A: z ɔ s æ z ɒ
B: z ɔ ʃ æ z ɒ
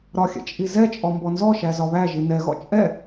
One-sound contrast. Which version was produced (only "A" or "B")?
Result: B